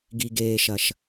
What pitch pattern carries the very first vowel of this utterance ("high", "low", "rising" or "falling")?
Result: low